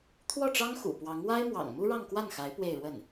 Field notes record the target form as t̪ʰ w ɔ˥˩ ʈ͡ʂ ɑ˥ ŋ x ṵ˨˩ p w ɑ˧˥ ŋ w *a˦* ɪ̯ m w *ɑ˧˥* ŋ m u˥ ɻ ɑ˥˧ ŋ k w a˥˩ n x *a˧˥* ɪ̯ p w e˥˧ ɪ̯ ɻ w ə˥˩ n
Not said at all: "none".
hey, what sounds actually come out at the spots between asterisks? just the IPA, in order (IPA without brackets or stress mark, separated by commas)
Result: a˥, ɑ̰˨˩, a˧˥